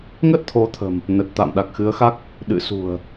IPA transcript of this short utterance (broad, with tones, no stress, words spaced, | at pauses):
ŋə˦˥t̚t̪ʰo˨˦t̪ʰə̤˨˩m | nə˨˩t̚ t̪a̰ː˧˨mɗa˨˩k̚xɨ˨˦ə̯xa˦˥k̚ | ɗɨ̰˧˨sṳ˨˩ə̯